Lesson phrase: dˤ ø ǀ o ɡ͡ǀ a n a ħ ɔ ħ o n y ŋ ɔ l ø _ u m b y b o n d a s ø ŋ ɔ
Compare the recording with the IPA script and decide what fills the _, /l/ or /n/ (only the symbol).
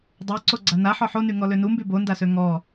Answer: n